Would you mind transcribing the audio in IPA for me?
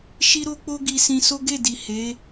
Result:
ʃ i˦ ɾ o˦ k͡p o˦ ɡ i˧ s ĩ˧ s o˦ ɡ e˦˨ d i˨ h e˨˦

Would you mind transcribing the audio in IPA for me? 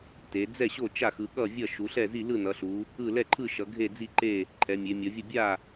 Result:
t e˩˧ d͡z ɛ˥˩ ɕ o˥˩ t͡ʃ a˥˩ x ɯ˩˧ ɠ ʌ˥˩ vʲ ʌ˥˩ ʃ u˩˧ ɬ ɛ˥˩ z i˥˩ l ɯ˥˩ n ʌ˩˧ ɬ u˩˧ | ɯ˥˩ l ɛ˥˩ ǃʰ ɯ˥˩ ʃ ʌ˩˧ ɡʱ e˥˩ d͡z i˥˩ ǃ e˥˩ | ǃʰ ɛ˩˧ mʲ e˩˧ mʲ ʌ˩˧ vʲ ʌ˥˩ bʲ a˥˩

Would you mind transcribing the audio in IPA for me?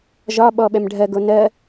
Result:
ʒ ɒ ɓ ɔ ɓ ɛ m ɖʱ ɜ ɡ o n ɜ

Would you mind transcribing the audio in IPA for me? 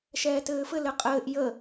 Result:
ʃ ɛː t ɘː f ɘ l ɘ qʼ ɘː ʔ j ə

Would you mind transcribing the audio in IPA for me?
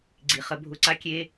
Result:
ɡ͡ǀ i˨ χ ə˧ bʱ ʊ˧ ǀ a˦ kʲ e˦

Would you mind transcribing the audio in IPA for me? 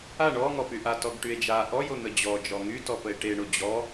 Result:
a ɳ ɔ ŋ ɔ p y ʔ a t ɔ ɡ ʈ y e̯ d͡ʒ a ʔ ɔ j o n̪ ə d͡ʑ ɔ d͡ʒ ɔ ŋ y t ɔ p ə e̯ ʈ e ɳ o d͡ʑ ɔ

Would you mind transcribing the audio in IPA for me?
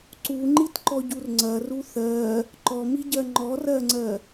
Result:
ǀ u ŋ͡ǃ i t ǃ ɔ ɟ u r ŋ͡ǀ ɐ r u θ ɜ | ǃ ɔ m i ɟ ɜ ŋ͡ǃ ɔ r ɜ ŋ͡ǀ ɜ

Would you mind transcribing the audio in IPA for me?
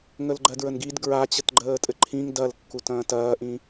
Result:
ŋ ə l ɡ͡ǃ ɜ d ɹ ə n ɡ i d ɡ ɹ a t͡ɕ ə t ɡ͡ǃ əː tʼ ɘ ǃʰ ĩ ŋ d ɐ l kː u t ɐ̃ː t ɐː ʔ ĩ

